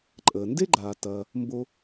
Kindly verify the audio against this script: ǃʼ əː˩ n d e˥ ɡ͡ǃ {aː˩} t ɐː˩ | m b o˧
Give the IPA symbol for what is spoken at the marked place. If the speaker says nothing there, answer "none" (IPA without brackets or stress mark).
aː˩